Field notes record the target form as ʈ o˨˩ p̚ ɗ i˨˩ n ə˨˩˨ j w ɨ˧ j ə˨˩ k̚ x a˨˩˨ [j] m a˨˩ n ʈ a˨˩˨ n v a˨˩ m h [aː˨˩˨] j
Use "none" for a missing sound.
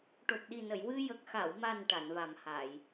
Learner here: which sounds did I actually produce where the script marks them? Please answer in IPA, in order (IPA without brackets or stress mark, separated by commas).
w, aː˨˩˨